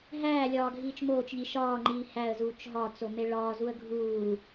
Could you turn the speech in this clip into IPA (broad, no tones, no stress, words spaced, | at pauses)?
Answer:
ɦæː lʲɒːɡʱiːt͡ʃmoːt͡ʃ ʎiʃɒː ŋ͡ǃiːhæə̯ zuːt͡ʃɦɒ t͡someɭɒː zuə̯ɡʱuː